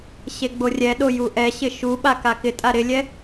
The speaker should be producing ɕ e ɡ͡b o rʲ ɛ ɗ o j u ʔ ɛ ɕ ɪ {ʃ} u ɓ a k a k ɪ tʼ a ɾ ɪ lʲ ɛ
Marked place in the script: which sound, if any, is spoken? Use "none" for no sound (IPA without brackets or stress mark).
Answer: ʃ